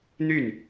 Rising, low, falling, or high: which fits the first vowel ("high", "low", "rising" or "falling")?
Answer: falling